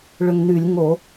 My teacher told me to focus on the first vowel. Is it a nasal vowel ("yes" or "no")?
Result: no